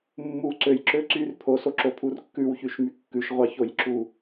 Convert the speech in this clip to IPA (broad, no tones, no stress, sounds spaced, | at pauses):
mː u ǀ ø j ǁ ø ǀ y r pʰ o s o ǁ o pʰ u r kː ʉ w ç y ʃ m y kː ʉ ʃ ʁʷ ɑ ç o j ǁ u